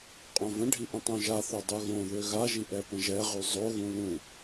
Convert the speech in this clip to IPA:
qʼ õ v ə̃ ɖʱ i ʔ ə̃ tˤ õ ʒ a θ o dˤ u ɣ õ ð ø ɣ a ʒ i ʔ ɛ p ə̃ ʒ ɛ ʁ y zˤ o ɣ ũ l ũ

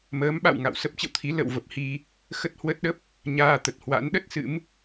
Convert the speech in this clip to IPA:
m əː˨˦ m ɓ a̰˧˨ w ŋ a̰˧˨ w s ə˦˥ p̚ t͡ɕ ə̰˧˨ w t̪ʰ i˨˦ l ə̰˧˨ w v ə˨˩ p̚ h i˧ | x ə˦˥ t̚ h w ə˦˥ t̚ ɗ ə˦˥ p̚ | ɲ aː˧ t̪ ə˨˩ t̚ h w a̰˧˥ n ɗ ə˦˥ t̚ s ɨ̰˧˥ m

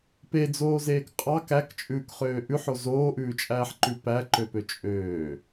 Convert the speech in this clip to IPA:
p e d͡z oː z eː k qʼ ɑ k æ k t͡ʃʼ ʉː k χ øː ʔ ʉ ħ o z oː ʔ ʉː t͡ʃʼ æː ħ ǃ ʉ p æ ǃ ø p ø t͡ʃʼ øː

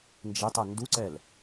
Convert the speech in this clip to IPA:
n d͡ʒ e tˤ ɐ n d u ǀ ɛ l

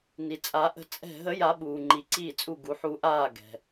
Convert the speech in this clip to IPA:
n i˩ t͡sʼ a˨˩˦ ʔ ə̤˧˩ t͡sʼ ɛ̤˧˩ ɦ ə˨˩˦ j a˨˩˦ ɓ uː˩ ŋ͡ǃ i˩ ǀ iː˧˩ t͡sʼ u˧˩ ɡ u˩ ħ u˨˩˦ ʔ aː˧˩ ɡ ɛ̤˩

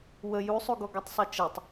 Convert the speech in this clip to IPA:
w ə j u sˤ u ɡ ɔ ɡ ɔ tˤ sˤ ɨ t͡ʃ ɐ tˤ

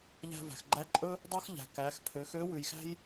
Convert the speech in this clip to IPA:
ʎ æ̤˧ v æ̤˩ x ɡ͡ǃ æ˧˥ ǃʼ ɵ˥ | dˤ œ˥ x ʎ æ̤˩ k æ˩˧ x pʰ ø˩˧ x ø˧˥ w ʉ˩ j x æ̤˥ j

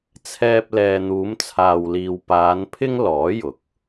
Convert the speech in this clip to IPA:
t͡sʰ ɛː˧ p̚ l ɛː˨ n̪ uː˨˧ m t͡sʰ aː˨ w l iː˨ w p aː˨˧ n pʰ ɪ˥ ŋ l ɔː˨˥ j ʊ˨˥ k̚

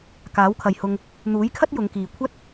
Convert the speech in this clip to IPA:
k aː˨˥ w kʰ ɐ˨ j h ʊ˧ ŋ | n̪ uː˨˥ j kʰ ɐ˥ t̚ j ʊ˨˧ ŋ k iː˨ kʷʰ ɐ˥ t̚

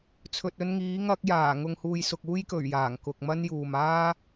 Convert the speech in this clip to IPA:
t͡sʰ ɵ˨ t̚ ɵ˧ n ŋ iː˨˥ ŋ ɐ˧ k̚ j aː˨˩ ŋ ʊ˨ ŋ h uː˨ j s ʊ˨ k̚ uː˥ j k ɵ˨˩ ɥ j aː˨˩ ŋ k ʊ˨ k̚ m ɐ˥ n j uː˨ m aː˥

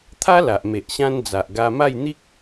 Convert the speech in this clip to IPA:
t̪ʰ a˦ l a˨ ʔ m e˨ ʔ ɕ ã˦ n d͡z a˨ ʔ ɡ a˧ m a˥˧ j n̪ i˦ k̚

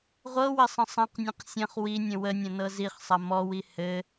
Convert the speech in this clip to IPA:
ʁʷ ɤ w ɘ sˤ ə̃ sˤ ɐ̃ q nʲ ə̃ q sʲ ɐ̃ χ w i nʲ ə̃ w ə nʲ ɐ̃ n ɤ z i χ sˤ ɐ m ɔ w i h ɘ

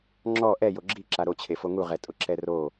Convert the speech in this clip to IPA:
ŋ͡ǁ ɔ ʔ ɛ j o ɡ͡ǁ i ǁ a ɾ o t͡ɕʰ e f o ŋ u ʁ ɛ tʼ ʊ ǁ ɛ r o

